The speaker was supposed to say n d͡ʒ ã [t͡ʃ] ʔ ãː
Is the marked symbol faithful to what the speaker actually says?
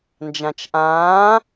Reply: yes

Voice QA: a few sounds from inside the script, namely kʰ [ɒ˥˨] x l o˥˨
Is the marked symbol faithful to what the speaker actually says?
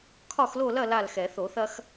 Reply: yes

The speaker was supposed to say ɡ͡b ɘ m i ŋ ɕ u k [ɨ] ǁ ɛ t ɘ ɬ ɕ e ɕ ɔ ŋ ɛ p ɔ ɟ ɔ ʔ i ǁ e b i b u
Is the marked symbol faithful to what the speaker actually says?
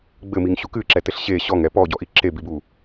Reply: yes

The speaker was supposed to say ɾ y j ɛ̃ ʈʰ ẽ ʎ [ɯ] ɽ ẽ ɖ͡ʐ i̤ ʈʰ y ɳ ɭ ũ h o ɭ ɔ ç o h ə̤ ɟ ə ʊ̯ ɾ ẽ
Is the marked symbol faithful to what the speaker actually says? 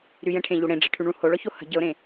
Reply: no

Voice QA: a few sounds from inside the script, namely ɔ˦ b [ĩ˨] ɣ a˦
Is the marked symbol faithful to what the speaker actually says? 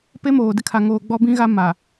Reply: no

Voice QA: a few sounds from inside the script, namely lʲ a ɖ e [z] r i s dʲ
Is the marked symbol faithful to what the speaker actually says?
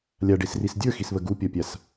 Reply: no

